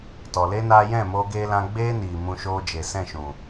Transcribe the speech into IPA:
t ɔ˨ l e˦ n aː˧ j ɛ̃˦˨ m oː˧ ɡ eː˧ l ã˧ ɡ͡b eː˦ n iː˨ m ũ˧ ʃ oː˧ d͡ʒ e˨ s ɛ̃˦˨ ʃ ũ˨

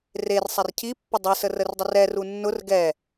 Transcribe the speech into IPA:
r e r sˤ ɛ r cʰ i pː ʊ dˤ i s ə r ə r dˤ ə r ɛ r u nː ʊ r ɡ ɛ

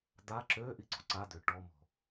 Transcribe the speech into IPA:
d̪ a ǁ ø ʔ i ǀ o̤ ǀ a d̪ ø ʈ ɔ m ɔ̤

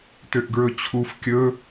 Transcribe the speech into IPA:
t ø ʔ ɡ ɹ ɵ t͡ɕʰ u f kʲ ɵ

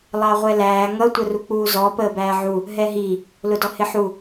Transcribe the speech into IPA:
lˠ ɑ ʁʷ ɛ l æː ŋ ʌ tʷ ə r u k͡p uː z ɔ p əː b æː ʕ u | ɦ ɛ ɦ i | l ʊ d ɔ h ɪ ħ u

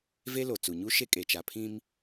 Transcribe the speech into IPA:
v e˦ l o˨ t͡s u˨ ɲ u˦ ʃ e˦ kʼ e˨ t͡ʃ a˨ pʰ ĩ˦ m

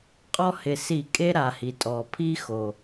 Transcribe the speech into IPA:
qʼ ɔ˦ h ɪ˨˩ s i˧˩˧ kʼ e˦ ɾ a˨˩ h i˨˩ tʼ ɔ˨˩ pʰ i˦ x o˨˩

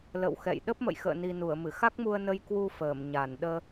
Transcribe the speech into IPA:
l ə̰˧˨ w x ɛ̰˧˨ j ɗ ə˦˥ p̚ m ə̰˧˨ j x ə̰ː˧˨ n i˨˩ n u˧˩ ə̯ m ɨ˧˩ x a˦˥ k̚ m u˧ ə̯ n ə˧ j k w u˧ f əː˧˩ m ɲ a˧˩ n ɗ əː˧

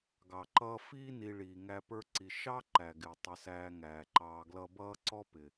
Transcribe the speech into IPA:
ɡ ɑ˩ ǃ ʌː˦ f iː˦ n i˨ ɭ iː˨ ŋ æ˦ p ə˞˦ ǀ i˨ ʃ ɑ˥ ǃ æ˩ ɡ ɪː˩ tˤ ə˨ s æː˨ ŋ æː˩ ǃ ɑː˨ ɡ l ʌ˦ b ʌː˦ ǀ ɔ˥ p ɪː˩

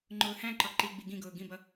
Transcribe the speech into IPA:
ŋ͡ǃ ʊː h æ̃ ǃ ɒ ǃ i ɡ͡b i ɡ ĩ ɡ ʊː ɡ ĩ b ʌ

